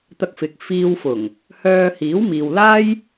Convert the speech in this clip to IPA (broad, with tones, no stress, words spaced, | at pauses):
t̪ɐ˧k̚fɪ˨k̚ fiː˧wfʊ˨˩ŋ | hœː˧hiː˨˥w miː˨wlaː˥j